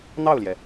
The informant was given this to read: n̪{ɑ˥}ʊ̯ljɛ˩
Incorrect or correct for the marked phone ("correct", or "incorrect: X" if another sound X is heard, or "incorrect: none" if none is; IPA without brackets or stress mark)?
incorrect: ɑ˥˩